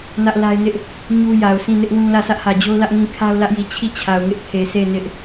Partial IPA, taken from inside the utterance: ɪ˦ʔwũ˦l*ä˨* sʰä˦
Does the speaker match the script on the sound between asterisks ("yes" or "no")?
no